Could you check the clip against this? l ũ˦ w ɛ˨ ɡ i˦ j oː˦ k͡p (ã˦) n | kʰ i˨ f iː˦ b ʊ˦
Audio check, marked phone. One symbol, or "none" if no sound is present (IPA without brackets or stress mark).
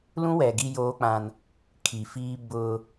ã˦